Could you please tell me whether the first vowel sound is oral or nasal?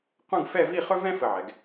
nasal